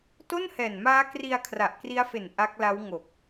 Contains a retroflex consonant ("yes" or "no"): no